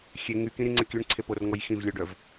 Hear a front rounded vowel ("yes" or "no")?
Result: yes